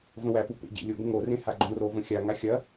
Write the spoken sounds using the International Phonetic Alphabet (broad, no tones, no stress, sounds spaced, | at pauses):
v ə̃ w æ p u p ḛ ɟ ḛ lʲ ʊ ɡ ə̃ ŋ o r ẽ h a ɡ͡ǃ õ r o v ə̃ xʲ a ŋ a xʲ ɐ